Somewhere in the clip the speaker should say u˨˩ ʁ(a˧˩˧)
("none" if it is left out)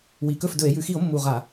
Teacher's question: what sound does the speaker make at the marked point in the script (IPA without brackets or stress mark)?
a˧˩˧